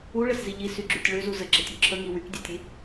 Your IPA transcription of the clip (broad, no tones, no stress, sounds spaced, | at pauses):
u ɭ ə s z i ʎ i s y ɡ͡ǁ y tʲ ɭ ø z u z ə ɡ͡ǁ ə tʲ o ǁʰ ə ŋ i w y k dʲ e tʲ i